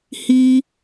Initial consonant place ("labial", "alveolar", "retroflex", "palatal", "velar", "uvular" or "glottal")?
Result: glottal